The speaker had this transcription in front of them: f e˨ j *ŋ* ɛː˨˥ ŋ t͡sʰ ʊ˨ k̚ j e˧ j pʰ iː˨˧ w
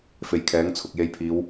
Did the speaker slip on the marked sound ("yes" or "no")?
yes